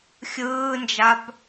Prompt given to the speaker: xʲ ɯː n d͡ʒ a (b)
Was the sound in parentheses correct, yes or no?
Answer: yes